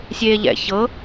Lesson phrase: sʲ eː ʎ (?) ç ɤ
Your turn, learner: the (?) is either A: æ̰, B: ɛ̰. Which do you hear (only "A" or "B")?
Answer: B